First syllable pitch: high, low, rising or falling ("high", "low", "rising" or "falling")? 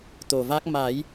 low